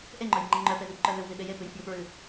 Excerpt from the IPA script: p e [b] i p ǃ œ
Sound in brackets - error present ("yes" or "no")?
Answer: yes